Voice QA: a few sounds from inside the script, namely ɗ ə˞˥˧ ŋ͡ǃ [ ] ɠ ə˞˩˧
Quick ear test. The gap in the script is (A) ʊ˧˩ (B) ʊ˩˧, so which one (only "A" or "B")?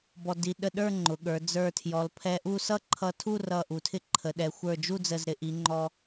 B